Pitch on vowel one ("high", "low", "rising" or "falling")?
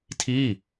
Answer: falling